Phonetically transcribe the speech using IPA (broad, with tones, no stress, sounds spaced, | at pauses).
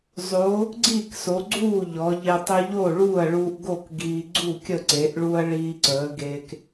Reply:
zˤ o˩˧ | ɡ͡ǀ iː˥˩ k s o˩˧ ɡ͡ǀ uː˥˩ ʎ ɔ˩˧ ʎ e˧ tˤ ə˧ ʎ o˥˩ ɭ uː˥˩ ɐ̯ ɭ uː˧ ʔ ɡ o˥˩ k ɡ iː˧ ɡ͡ǀ u˥˩ kʲ ə˥˩ ǀ e˩˧ ʔ ɭ u˧ ɐ̯ ɭ iː˧ ǀ əː˩˧ ɡ e˧ k